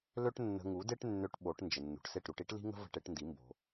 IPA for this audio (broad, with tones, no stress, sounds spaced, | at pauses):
l ø˥ ʈ nː ə̤˧ ŋ u˩˥ d e˥ ʈ nː ø˧ ʈ ɓ o˩˥ ʈ n d͡ʒ ə˩ nː ṳ˩ ʈ s e˥˩ ʈ ɾ u˧ ʈ i˥ ʈ l i̤˥ ŋ ə̤˥ v ə̤˥ ʈ e˩˥ ʈ n d i˩˥ m b o̤˩